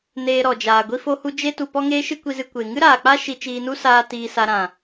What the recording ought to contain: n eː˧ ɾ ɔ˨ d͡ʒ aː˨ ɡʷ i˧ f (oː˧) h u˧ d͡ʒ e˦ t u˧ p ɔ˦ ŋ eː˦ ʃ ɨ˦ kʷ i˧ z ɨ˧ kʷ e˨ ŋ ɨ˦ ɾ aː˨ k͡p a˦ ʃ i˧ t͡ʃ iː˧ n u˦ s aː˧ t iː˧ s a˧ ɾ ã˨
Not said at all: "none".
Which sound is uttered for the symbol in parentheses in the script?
o˧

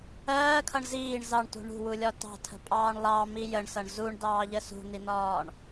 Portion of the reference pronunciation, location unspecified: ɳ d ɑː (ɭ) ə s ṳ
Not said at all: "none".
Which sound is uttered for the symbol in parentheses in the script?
ʎ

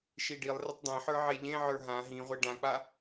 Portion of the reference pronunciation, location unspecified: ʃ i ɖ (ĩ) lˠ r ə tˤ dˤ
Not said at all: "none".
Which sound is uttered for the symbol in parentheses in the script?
i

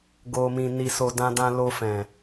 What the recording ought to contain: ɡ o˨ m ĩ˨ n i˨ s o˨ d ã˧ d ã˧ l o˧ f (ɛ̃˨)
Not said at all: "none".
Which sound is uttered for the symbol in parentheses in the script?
ɛ̃˨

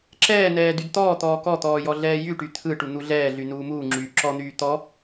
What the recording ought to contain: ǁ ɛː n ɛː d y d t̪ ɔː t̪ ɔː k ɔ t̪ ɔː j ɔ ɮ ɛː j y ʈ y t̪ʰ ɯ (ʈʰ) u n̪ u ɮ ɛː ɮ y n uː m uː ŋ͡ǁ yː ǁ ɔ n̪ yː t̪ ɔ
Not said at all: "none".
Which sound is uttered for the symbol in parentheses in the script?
ʈ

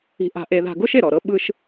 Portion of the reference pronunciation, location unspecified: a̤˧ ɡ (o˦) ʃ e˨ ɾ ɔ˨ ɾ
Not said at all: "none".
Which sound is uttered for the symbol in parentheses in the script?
o˦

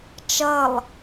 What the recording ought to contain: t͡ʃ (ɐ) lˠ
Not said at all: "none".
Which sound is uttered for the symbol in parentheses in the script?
ɐ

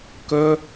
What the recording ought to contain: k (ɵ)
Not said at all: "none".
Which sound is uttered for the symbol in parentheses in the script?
ɵ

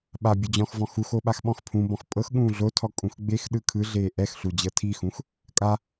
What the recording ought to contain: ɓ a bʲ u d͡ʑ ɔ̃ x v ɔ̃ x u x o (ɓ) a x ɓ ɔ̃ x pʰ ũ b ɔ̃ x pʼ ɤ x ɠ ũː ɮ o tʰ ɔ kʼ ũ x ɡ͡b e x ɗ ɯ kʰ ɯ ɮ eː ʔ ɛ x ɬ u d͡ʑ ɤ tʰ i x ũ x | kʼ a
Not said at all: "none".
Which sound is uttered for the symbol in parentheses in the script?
ɓ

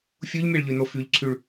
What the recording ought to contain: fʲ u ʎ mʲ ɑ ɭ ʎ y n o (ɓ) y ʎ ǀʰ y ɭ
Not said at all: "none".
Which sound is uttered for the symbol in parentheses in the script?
f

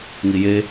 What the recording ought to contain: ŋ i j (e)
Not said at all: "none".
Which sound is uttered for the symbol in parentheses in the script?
e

